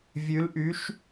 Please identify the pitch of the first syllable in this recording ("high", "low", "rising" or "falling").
rising